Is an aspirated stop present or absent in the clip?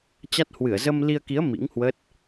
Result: absent